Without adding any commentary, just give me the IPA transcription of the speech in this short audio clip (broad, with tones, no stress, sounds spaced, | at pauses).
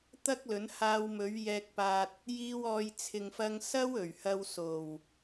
t̪ ɐ˥ k̚ l ɵ˨˥ n h aː˧ w m ɵ˨˥ ɥ j ɛː˧ k̚ p aː˧ t̚ | j iː˧ w ɔː˨ j t͡sʰ ɪ˨ ŋ f ɐ˧ ŋ s ɐ˥ w ɵ˨˩ ɥ h ɐ˧ w s o˨˩ w